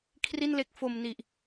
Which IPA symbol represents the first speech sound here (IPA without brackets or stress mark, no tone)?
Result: kʰ